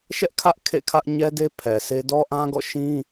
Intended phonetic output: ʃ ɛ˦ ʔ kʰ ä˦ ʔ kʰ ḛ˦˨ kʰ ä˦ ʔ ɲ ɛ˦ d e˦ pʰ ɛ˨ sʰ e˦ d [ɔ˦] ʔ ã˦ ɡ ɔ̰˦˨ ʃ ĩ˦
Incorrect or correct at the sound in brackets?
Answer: correct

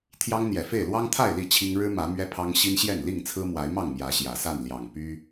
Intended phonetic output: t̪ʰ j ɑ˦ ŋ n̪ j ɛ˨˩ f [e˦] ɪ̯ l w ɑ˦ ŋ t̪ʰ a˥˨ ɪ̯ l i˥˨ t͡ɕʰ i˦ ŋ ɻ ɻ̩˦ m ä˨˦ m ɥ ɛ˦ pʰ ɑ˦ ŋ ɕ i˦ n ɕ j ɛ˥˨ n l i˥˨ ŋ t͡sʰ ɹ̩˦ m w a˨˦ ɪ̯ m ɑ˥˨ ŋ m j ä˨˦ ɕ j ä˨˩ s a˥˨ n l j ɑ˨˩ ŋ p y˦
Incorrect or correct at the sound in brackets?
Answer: incorrect: e˥˨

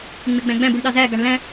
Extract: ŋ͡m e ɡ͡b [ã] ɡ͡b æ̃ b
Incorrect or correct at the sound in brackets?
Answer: incorrect: æ̃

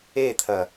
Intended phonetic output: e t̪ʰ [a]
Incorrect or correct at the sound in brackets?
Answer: incorrect: ɐ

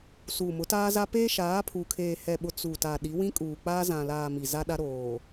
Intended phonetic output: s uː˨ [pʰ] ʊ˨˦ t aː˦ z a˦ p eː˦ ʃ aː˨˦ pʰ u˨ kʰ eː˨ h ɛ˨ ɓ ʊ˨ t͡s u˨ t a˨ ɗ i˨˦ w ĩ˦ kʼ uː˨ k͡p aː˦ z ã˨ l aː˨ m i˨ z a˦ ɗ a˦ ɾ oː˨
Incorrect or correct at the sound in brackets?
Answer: incorrect: m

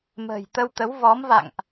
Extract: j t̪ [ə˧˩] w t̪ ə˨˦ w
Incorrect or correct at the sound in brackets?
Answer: incorrect: ə˧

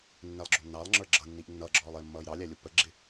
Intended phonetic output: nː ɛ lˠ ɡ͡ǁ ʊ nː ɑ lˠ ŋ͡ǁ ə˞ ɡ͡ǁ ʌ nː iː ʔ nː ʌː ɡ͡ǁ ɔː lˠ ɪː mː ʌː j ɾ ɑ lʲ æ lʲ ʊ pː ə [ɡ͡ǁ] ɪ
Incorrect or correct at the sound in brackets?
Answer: correct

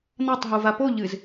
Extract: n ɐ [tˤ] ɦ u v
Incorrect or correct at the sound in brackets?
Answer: correct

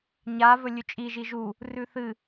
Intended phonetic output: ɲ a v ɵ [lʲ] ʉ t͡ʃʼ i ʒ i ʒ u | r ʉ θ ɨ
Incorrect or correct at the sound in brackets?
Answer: correct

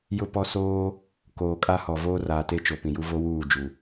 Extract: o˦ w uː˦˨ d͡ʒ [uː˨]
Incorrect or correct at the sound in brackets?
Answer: incorrect: u˨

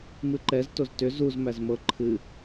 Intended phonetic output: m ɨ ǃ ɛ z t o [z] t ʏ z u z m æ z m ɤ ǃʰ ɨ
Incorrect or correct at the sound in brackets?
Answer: correct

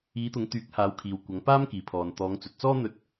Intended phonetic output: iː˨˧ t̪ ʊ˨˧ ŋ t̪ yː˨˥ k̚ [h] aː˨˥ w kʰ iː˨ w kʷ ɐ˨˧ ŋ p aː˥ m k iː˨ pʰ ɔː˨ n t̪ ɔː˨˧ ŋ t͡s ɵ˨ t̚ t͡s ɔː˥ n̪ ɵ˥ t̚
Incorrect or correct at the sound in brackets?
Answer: correct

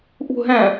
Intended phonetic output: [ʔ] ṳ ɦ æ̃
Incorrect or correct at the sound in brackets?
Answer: correct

